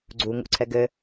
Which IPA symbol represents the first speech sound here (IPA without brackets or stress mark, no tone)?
ɡ͡ǀ